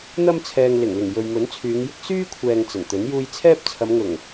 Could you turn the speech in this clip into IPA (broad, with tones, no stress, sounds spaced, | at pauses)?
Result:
n̪ ɐ˧ m t͡sʰ ɛː˨ ŋ l ɪ˨˩ ŋ l ɪ˨˩ ŋ j ɵ˨ ɥ m ɵ˨˥ n t͡sʰ yː˨˧ ŋ j ɪ˥ k̚ s yː˥ kʷʰ ɛː˨ ŋ t͡s ɐ˨˩ n t̪ ɵ˨˥ n j uː˧ j t͡sʰ ɛː˥ p̚ t͡sʰ ɐ˨˧ m ŋ ʊ˨˩ ŋ